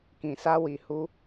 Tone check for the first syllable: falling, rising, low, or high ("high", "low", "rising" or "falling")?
low